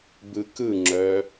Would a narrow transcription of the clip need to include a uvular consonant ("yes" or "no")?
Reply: no